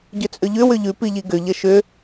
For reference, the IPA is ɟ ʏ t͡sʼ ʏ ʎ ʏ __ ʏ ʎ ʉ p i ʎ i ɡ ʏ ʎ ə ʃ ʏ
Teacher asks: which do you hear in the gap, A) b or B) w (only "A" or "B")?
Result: B